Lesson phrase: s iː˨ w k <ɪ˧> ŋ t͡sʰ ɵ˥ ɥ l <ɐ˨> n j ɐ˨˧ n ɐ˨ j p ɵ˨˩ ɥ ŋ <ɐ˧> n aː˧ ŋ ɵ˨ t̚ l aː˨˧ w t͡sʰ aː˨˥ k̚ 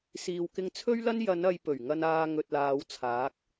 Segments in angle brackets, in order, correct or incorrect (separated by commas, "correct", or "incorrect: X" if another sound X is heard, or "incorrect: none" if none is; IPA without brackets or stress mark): correct, incorrect: ɐ˥, correct